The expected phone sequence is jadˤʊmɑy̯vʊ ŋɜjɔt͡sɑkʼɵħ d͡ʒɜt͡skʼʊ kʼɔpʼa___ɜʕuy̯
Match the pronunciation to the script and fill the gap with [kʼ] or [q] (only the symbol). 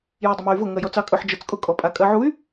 kʼ